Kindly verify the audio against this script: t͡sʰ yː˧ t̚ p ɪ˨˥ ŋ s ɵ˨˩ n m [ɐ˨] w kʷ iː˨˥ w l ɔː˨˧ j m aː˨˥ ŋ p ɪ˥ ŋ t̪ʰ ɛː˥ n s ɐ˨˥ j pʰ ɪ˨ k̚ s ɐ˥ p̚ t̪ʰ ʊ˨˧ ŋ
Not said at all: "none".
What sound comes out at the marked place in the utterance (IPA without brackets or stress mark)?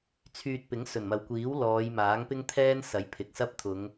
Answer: ɐ˨